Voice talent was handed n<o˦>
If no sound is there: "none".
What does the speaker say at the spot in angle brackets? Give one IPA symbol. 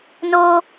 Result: oː˦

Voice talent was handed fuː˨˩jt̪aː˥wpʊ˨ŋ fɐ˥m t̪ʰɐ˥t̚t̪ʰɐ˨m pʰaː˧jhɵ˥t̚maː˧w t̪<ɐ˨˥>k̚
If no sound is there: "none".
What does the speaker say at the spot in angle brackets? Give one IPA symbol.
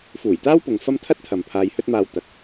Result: ɐ˨˥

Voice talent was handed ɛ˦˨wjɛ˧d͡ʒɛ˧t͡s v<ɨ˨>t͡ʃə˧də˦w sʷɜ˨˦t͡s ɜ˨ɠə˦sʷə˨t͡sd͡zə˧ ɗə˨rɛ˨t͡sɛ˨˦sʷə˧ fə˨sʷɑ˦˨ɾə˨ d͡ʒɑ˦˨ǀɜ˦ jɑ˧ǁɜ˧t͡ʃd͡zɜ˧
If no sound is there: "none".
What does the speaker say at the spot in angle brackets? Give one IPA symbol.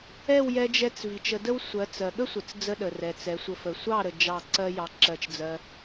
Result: i˨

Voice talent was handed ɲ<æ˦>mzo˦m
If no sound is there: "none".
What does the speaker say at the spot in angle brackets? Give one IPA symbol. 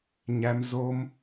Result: æ˦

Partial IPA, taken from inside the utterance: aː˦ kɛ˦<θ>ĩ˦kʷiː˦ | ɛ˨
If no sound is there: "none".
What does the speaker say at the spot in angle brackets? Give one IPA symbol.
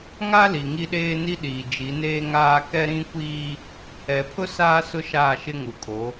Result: ɾ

